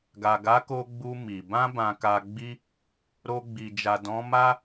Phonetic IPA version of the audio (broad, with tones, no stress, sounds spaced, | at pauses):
ɡ a˨ ɡ a˨˦ k o˧ ɡ͡b u˧ m i˨ b ã˧ b ã˨ k a˨ ɡ͡b i˧ | ɾ o˧ ɡ͡b i˨ d͡ʒ a˨ d ɔ̃˨˦ m a˦